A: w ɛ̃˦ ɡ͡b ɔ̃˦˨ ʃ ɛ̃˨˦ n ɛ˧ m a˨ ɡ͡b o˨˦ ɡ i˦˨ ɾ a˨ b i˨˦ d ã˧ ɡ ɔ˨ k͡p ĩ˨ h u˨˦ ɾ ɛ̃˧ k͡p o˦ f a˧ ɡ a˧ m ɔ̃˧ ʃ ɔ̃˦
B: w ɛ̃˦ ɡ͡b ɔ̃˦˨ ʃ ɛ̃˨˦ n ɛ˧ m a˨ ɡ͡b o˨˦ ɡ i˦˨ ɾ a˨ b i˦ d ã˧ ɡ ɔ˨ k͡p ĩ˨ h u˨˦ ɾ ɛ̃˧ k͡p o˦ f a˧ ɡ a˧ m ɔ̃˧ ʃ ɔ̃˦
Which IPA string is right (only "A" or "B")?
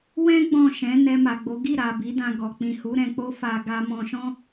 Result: A